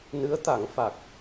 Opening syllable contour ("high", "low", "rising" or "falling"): rising